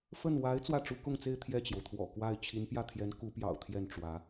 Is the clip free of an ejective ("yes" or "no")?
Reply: yes